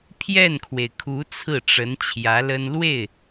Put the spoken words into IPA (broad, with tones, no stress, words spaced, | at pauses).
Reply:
pʰjɛ˥˩nkʰwe˩ɪ̯kʰu˧˥ t͡sʰɹ̩˥˩ʈ͡ʂə˧˥n t͡ɕʰjä˧˥lə˥n lwe˥˩ɪ̯